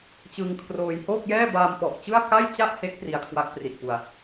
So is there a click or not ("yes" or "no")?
no